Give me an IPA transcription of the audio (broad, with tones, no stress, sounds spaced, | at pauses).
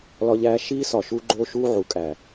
l ɒ˦ ʎ æː˦ ʃ iː˦ s ɒ˨ ʃ u˦ ɡ͡ǃ oː˦ ʃ uː˦ ʕ u˨˦ kʼ æː˨